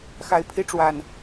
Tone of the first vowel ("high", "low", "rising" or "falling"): rising